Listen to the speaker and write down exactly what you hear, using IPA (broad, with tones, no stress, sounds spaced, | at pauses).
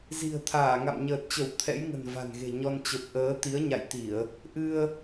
z i̤˨˩ ə̯ t̪ʰ aː˧˩ ŋ a̰˧˨ m ɲ əː˨˩ t̚ t͡ɕ ə˧˩ w t̪ʰ ɛ̰˧˥ j ŋ ə̤˨˩ n v a̤˨˩ n ɣ e̤˨˩ ɲ ɔ˧ n t͡ɕ ə˨˩ p̚ ʔ əː˨˦ t̪ i˨˦ ə̯ ɲ a̰˧˨ j t̪ i˧˩˨ ə̯ | ʔ ɨ˧ ə̯